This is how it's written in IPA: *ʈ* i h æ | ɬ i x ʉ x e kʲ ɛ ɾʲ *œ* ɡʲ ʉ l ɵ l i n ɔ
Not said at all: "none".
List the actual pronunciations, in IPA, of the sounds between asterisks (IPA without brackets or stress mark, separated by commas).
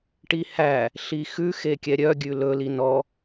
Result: ʈ, œ